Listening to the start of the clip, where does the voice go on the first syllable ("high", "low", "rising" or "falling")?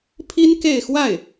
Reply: high